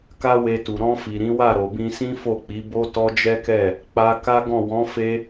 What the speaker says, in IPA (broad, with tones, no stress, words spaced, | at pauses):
ka˦we˧tu˨ ɾɔ̃˧fi˨ ɾĩ˨˦wa˦˨ ɾo˨bĩ˧sĩ˦ fo˦˨k͡pi˨˦bo˦ tɔ˦d͡ʒɛ˦kɛ˦˨ | k͡pa˧ka˦ɡɔ̃˦˨ wɔ̃˨˦fe˧